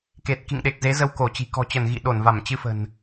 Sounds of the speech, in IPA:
k e˨˩ t̚ k ḭ˧˨ ŋ ɗ e˨˩ k̚ z e˨˦ z ə˧ w k o˧˩ t͡ɕ i̤˨˩ k ɔ̤˨˩ t͡ɕ ə˧˩ n ɣ ḭ˧˨ ɗ o˧˩ n v a˧˩ m t͡ɕ ɨ˧ f ə̤˨˩ n

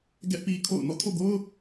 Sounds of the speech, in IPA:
ɡ ɛ˦ ʔ p i˦ kʰ o̰˦˨ ʊ̯ n ɔ̰˦˨ tʰ o̰˦˨ ɡ o˦ ʊ̯

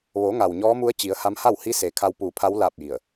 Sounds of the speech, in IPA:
ʋ o˩˧ ŋ a˩ w ɲ ɔː˧˥ m u˧˥ ə̯ t͡ɕ i˩˧ ə̯ h a˧˥ m h a˥˨ w h i˧˥ s eː˩ kʰ a˧ w p uː˧˩ pʰ a˧˥ w l aː˥˨ p̚ j i˧˩ ə̯

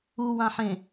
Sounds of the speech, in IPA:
u w ã ħ ẽ

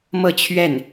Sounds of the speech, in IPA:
m ɤ˥˧ t͡ɕʰ ɥ ɛ˥˩ n

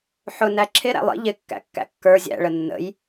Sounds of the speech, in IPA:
ħ ʊ n æ ǁʰ ɪ ɾ æ̰ lˠ ḭ ʎ ɪ kː æ̰ kː æ̰ kː ə˞ zʲ æ̰ ɭ ə nː ə̰ j

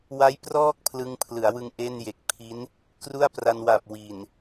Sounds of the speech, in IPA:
w a˦˥ j p r ɔː˥˩ k̚ pʰ l ɯ˧ ŋ pʰ l ɯ˩˦ a̯ w ɯ˧ ŋ ʔ e˥˩ n j e˨˩ k̚ pʰ i˦˥ n | k r u˥˩ a̯ p r a˧ n w a˨˩ p̚ w i˨˩ n

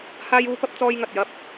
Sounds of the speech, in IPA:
h aː˥ j uː˥ p ɐ˥ p̚ t͡s ɔː˥ j ŋ ɐ˨ t̚ j ɐ˥ p̚

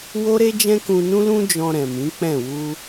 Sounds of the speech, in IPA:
w o˦ ɾ e˦ d͡ʒ ɛ̃˦ k ũ˧ n ũ˦ l ũ˦ d͡ʒ ɔ̃˧ ɾ ɛ̃˨ m ĩ˨˦ k͡p ɛ̃˦˨ w u˧

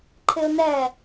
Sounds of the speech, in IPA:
ǃʰ ɪ ʊ̯ n ɛ

